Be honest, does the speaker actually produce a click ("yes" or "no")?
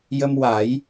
no